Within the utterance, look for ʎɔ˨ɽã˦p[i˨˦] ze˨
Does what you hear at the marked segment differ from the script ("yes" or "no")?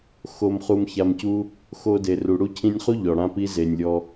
yes